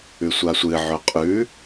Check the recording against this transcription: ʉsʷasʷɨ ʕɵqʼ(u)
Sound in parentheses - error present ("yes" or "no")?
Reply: yes